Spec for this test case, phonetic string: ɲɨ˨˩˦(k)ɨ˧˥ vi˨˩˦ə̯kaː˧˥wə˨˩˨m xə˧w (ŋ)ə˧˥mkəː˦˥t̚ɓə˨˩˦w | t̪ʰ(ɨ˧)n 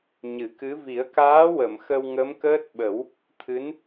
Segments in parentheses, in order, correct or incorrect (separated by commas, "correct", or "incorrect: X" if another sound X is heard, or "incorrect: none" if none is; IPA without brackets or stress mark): correct, correct, incorrect: ɨ˧˥